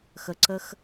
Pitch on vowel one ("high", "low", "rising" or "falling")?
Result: low